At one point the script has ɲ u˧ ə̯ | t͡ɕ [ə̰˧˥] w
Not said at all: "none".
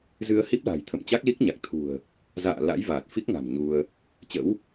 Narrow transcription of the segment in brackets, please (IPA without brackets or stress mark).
ə̰˧˥